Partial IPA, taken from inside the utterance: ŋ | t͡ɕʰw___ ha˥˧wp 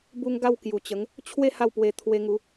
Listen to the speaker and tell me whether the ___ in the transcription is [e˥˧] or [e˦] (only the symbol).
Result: e˥˧